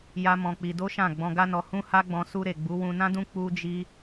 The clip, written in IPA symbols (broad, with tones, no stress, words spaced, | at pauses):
ja˦mɔ̃˧k͡pi˧ do˦ʃã˦˨ ɡ͡bɔ̃˧ɡa˦nɔ˧ hũ˦ha˦ɡ͡bɔ̃˧ su˧ ɾe˨ ɡ͡bu˨˦wũ˧nã˦dũ˦ k͡pu˦d͡ʒi˦